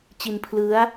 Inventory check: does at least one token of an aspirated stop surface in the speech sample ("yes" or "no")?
yes